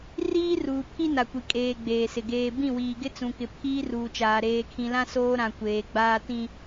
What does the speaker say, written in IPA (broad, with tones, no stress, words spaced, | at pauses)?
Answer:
riː˦ruː˨pʰi˦ na˨kʷi˨ kʼeː˨ ɡ͡beː˨sɪ˨ ɡeː˨bĩ˦˨wiː˨ɡɪ˦ t͡sũ˨kɪ˨ pʰiː˦ruː˨t͡ʃaː˨ ɾeː˨kʰĩ˨lã˦ soː˦ɾã˨ kʷeː˨ɡ͡baː˦ tĩ˦